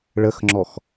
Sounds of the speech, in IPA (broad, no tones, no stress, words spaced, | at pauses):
ɭəxŋ͡ǁɔx